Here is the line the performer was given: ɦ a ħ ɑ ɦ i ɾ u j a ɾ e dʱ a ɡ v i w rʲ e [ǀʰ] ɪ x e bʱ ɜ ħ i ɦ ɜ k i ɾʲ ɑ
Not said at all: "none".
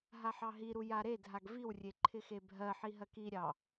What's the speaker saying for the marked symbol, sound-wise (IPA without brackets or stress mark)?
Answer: ǃʰ